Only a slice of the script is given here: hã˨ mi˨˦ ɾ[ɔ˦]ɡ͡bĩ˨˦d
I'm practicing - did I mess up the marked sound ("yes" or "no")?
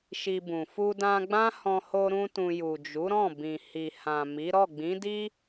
yes